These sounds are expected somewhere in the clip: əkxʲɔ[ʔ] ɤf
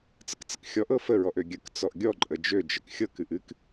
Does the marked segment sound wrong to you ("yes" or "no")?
no